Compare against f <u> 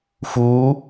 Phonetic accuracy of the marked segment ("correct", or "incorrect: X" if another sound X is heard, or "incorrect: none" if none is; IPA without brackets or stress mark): correct